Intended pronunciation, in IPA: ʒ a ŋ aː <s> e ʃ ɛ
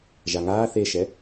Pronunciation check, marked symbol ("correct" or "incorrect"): incorrect